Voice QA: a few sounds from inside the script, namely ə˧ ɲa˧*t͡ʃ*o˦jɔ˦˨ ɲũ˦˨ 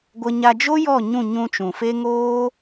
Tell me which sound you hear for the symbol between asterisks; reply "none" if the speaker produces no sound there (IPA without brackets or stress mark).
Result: d͡ʒ